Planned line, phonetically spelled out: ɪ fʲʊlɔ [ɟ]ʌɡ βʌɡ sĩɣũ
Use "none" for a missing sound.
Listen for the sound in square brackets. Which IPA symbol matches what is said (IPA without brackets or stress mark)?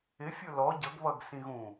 ɟ